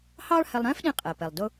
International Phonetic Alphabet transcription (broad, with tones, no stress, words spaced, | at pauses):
hɑː˥ɭhɛ˧lˠɾɛ̃ː˥f ɗĩ˧qʼɛ˩pɛ˩lˠ dʊ˧